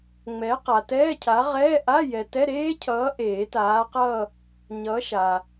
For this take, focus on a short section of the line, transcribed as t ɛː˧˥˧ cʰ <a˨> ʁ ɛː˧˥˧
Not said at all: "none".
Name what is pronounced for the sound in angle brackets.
a˨˥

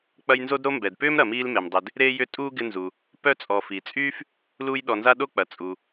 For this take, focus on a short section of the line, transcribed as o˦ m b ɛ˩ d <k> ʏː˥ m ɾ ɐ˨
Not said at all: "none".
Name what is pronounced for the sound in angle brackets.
p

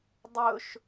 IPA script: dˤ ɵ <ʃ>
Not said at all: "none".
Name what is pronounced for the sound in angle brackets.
ʃ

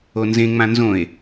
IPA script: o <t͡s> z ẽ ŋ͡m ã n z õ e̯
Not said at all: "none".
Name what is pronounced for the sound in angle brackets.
n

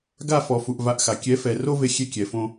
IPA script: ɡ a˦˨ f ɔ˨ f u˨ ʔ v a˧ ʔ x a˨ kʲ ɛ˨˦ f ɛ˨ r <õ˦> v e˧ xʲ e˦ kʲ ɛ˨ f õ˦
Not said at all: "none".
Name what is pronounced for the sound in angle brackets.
o˦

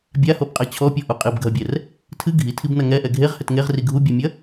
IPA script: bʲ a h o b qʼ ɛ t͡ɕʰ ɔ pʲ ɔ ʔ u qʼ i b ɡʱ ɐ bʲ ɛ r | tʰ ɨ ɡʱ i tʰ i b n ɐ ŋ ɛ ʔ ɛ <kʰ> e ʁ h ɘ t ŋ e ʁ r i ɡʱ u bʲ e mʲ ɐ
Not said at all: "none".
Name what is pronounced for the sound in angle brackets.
ɡʱ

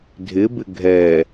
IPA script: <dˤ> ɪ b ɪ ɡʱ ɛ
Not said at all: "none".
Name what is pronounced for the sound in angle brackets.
dʱ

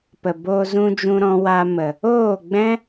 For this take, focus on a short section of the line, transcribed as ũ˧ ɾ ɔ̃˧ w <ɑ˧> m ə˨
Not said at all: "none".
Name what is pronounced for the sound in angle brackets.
a˧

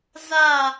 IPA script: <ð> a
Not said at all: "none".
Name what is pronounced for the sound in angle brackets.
z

